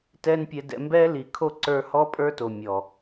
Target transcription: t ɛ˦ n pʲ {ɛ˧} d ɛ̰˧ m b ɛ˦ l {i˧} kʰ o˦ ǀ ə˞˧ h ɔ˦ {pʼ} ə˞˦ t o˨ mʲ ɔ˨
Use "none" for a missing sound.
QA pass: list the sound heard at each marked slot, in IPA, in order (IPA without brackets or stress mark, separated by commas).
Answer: ɛ˧, i˨, pʼ